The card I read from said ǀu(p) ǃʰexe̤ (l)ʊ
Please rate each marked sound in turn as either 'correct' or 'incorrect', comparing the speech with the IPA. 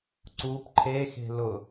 correct, correct

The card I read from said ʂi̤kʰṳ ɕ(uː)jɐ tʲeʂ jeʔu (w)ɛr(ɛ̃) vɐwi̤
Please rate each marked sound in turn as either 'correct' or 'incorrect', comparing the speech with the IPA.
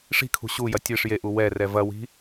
incorrect: u, correct, incorrect: ɛ

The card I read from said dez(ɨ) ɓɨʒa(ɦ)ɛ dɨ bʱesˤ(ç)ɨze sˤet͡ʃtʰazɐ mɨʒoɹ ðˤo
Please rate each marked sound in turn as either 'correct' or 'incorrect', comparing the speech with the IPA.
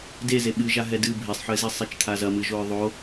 incorrect: e, correct, incorrect: ħ

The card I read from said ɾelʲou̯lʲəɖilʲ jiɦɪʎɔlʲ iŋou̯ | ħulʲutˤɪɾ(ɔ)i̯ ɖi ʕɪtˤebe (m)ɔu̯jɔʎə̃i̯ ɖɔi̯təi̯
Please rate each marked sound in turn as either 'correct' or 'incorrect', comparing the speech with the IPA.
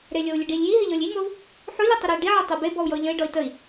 correct, incorrect: b

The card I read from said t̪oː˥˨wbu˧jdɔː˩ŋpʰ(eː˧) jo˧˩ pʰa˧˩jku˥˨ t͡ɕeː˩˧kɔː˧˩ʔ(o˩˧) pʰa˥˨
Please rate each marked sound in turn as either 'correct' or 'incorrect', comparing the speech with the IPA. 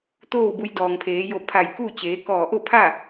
incorrect: eː˩˧, incorrect: o˥˨

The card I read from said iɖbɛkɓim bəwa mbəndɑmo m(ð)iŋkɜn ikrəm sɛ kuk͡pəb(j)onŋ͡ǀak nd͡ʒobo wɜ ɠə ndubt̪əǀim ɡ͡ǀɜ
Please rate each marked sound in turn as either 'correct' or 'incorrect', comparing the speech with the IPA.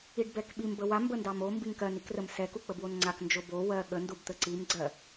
incorrect: b, incorrect: w

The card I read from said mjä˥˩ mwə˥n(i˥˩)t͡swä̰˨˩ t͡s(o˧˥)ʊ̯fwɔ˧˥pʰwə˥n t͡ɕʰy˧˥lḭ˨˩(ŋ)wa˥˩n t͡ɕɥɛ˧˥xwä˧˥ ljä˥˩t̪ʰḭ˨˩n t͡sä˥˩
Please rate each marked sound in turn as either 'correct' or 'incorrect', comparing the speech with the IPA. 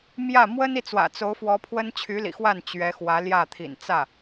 correct, correct, incorrect: x

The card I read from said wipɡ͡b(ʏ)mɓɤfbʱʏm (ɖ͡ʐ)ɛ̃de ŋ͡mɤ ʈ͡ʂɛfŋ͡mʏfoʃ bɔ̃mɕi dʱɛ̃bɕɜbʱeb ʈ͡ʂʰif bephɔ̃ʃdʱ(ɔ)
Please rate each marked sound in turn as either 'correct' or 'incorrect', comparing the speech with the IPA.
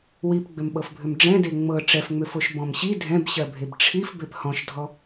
correct, correct, correct

